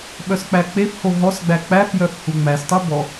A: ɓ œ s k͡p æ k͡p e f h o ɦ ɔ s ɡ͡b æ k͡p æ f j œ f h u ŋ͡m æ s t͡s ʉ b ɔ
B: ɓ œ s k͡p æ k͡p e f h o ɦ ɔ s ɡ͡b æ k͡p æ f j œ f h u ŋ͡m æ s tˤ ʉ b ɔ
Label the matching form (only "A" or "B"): B